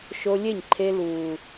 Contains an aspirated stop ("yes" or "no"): yes